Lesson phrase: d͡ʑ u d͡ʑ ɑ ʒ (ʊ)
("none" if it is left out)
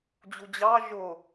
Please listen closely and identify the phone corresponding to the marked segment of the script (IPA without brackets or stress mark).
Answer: ʊ